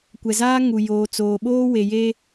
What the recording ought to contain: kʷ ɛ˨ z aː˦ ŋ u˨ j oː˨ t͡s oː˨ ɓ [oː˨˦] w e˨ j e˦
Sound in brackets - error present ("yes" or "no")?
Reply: yes